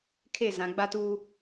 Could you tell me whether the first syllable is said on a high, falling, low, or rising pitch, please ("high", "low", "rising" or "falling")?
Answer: falling